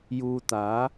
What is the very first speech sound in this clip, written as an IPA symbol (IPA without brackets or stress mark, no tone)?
j